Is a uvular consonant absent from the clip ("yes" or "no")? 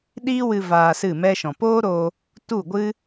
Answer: yes